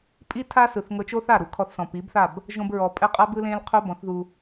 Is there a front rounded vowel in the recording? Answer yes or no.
no